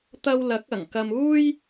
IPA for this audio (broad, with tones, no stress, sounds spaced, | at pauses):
t̪ ɐ˥ w l ɐ˨˥ k̚ ɐ˨˩ ŋ k ɐ˧ m uː˥ j